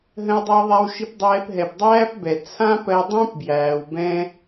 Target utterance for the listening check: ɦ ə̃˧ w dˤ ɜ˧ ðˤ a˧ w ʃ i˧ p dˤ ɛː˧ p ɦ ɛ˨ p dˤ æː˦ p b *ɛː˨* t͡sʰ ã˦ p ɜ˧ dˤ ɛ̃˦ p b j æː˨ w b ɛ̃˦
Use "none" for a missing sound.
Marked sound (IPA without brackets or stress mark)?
ɛ˨